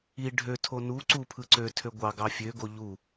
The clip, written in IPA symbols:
i ɖʱ ø tʰ o n u ǀ u pʰ ɯ ǀ ø tʰ ø ɡʷ ɑ ɡ ɑ fʲ ø ɡ o ʎ u

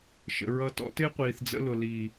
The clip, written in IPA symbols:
ʃ ə̰˨ ɹ ʌ˧ t ɔ̰˦ t ɪː˦ qʷ iː˨ θ d͡z ə̰˧ l ʊ˨ l i˨

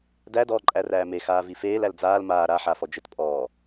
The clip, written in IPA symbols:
d æ d ɔː ǃʼ æ r æː m e x aː v i f eː l æ l d͡z aː l m aː ɾ a ħ a f ɔ d͡ʒ ɘ t pʼ ɔː

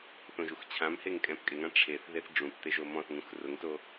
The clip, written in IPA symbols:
θ õ ʒ u x t͡ɕʰ ã m h e ŋ kʼ ɛ̃ p kʼ ɪ ŋ ã ʈ͡ʂʰ e θ ð e θ ɖ͡ʐ ũ p t̪ e ʒ o m ɔ̃ θ ŋ ũ x r ʊ ŋ t o

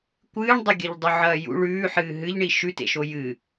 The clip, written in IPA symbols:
kʷ ɨː ɳ dˤ ɐ ɡʲ ɐ ʎ dˤ u ʕ ɐː j ṵ ɭ ʉː ħ ɨː ɦ ɨ ʎ ɳ i ʃ ʉ t ḛ ʃ o j ɨ

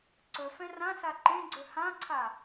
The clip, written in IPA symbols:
ǀ ɵ f ɛ̃ r ã s a ǃ ẽ ɡ͡ǀ ɵ h ã ǀʰ a

